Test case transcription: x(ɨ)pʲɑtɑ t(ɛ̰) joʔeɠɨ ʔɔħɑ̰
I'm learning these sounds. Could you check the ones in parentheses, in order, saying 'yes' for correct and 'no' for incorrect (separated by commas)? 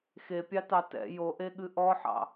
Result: no, yes